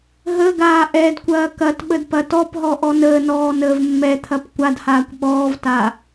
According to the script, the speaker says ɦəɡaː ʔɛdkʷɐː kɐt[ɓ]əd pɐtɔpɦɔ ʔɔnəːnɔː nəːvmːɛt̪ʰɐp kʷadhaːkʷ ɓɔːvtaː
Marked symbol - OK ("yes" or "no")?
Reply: yes